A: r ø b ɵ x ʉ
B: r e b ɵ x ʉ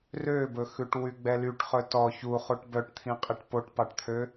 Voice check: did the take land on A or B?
A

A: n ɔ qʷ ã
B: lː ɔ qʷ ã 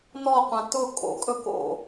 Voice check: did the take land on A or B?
A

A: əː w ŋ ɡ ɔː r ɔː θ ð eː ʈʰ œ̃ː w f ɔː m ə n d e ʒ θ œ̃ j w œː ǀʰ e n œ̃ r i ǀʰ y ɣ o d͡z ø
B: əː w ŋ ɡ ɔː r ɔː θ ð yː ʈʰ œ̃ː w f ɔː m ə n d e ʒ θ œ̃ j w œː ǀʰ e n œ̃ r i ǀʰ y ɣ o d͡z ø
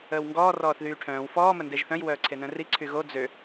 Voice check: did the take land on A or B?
B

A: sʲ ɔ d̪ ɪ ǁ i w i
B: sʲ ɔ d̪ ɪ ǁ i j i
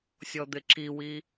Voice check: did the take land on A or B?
A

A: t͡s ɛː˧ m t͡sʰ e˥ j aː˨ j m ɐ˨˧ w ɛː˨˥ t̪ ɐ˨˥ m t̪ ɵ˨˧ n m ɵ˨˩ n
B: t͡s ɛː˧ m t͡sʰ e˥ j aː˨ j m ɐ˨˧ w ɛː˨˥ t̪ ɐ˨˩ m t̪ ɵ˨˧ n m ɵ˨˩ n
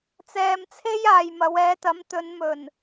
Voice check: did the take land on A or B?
A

